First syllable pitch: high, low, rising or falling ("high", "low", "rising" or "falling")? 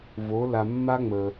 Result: rising